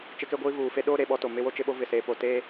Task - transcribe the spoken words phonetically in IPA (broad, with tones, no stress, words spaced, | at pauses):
t͡ʃɪ˦ke˦ɡʷiː˦vuː˨ fe˦ɗoː˦ ɾe˨ɓɔ˦to˨ mɪ˦wo˦t͡ʃɪ˦ɓo˦ vɪ˨seː˨˦po˨ te˦